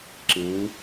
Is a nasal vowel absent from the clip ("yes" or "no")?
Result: no